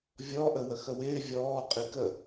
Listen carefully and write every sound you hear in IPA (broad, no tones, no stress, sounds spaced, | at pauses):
vʲ ɔ ʔ ə w ə x ə w ɪː vʲ ɔː qʼ i k ə